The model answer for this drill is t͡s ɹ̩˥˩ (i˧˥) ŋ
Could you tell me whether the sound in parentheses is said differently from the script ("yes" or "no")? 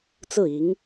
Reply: no